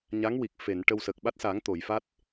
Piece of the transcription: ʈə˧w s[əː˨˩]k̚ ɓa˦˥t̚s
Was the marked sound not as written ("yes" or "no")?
yes